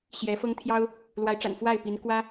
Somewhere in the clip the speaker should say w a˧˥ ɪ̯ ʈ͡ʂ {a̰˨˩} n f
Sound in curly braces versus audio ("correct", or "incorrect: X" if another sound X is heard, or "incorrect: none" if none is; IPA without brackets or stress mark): correct